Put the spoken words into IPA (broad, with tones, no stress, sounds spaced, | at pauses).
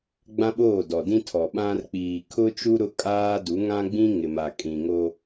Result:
ɡ͡b ã˦ ɓ oː˦˨ d ɔ˨ d ĩ˦ tʰ ɔ˨ ɓ ã˦ r k͡p iː˨ kʰ ʊ˦ t͡ʃ u˦ ɾ ʊ˦ kʼ aː˦ d u˨˦ ŋ ã˦ ɡ͡b ĩ˦ ŋ ɪ˨ m a˨ kʼ ĩ˨ ŋ o˦